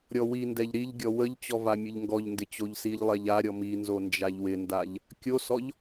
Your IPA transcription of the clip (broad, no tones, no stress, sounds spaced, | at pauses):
ɾʲ ɔ w i n d ɛ ʎ ɾ i ʎ ɡʲ ɔ w ə ʎ t͡ɕ ɔ v a mʲ ə ʎ ŋ ɡ ɔ ʎ n d ɪ t͡ɕ o ʎ s i ʎ lˠ ɛ ʎ a ɾʲ ɔ m i n z o n d͡ʒ a ʎ w ɪ n d a ʎ | kʲ o s ɔ ʎ